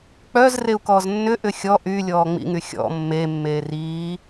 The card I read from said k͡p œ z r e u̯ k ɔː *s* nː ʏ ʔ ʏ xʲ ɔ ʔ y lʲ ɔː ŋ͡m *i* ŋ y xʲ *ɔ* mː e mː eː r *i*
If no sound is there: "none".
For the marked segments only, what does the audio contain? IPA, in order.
z, ḭ, ɔ̰, iː

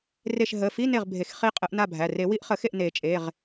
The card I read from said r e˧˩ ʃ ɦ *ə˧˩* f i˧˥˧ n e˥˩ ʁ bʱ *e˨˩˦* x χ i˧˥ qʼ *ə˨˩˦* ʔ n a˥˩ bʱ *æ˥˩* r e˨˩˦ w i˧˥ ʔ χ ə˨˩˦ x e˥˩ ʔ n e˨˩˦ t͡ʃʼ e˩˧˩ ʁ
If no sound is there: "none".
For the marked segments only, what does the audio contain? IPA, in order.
ə˩˧˩, e˨˩˦, ə˨˩˦, æ˩˧˩

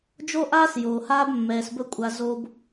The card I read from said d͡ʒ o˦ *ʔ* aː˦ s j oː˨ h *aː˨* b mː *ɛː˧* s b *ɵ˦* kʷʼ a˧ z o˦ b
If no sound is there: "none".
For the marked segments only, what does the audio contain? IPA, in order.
ʔ, aː˦, ɛː˧, ɵ˦

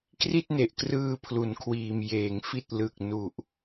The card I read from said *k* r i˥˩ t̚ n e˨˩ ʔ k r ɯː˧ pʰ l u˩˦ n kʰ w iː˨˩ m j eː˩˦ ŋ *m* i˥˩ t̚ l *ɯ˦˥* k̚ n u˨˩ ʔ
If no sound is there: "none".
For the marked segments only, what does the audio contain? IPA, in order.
k, f, ɯ˨˩

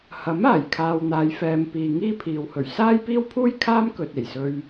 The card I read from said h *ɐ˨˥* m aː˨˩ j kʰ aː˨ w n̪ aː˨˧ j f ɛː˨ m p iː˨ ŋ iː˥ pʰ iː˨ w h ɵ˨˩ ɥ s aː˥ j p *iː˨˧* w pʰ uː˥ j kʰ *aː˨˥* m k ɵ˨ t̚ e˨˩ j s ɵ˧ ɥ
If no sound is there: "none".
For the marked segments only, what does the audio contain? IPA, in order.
ɐ˨˥, iː˥, aː˥

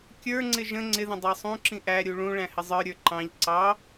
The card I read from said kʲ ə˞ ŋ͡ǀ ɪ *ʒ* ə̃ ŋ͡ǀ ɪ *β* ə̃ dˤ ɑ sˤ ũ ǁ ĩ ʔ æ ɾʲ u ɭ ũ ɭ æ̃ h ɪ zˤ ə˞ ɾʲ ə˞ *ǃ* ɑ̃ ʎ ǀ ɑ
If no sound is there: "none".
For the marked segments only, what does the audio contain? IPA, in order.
ʒ, ð, ǃ

